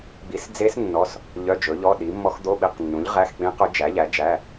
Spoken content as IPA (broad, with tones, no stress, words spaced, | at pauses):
ɡ͡bi˨˥sd͡ze˦˥s nːɔ˧˥˧s | ʎœ˧˥˧d͡ʒɵ˨˥ʎɔ˧˥˧ ɗi˨˥mːɔ˦˥x d̪o˧˥˧ɓi˧˥˧qnːũ˨˥ʎ ʁæ˧˥˧xk͡pĩ˦˥qɵ˦˥ d͡ʒæ˨˥ʎæ˨˥d͡ʒæ˧˥˧